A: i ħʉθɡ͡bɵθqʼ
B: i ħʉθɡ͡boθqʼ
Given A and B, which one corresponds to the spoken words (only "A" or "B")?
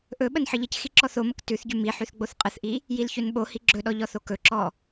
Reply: B